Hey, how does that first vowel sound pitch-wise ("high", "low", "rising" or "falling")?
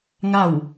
falling